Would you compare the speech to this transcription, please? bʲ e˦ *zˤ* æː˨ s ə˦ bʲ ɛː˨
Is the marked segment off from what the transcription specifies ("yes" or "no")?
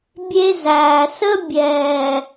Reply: yes